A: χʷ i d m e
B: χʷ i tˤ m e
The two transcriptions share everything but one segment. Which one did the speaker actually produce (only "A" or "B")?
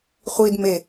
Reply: A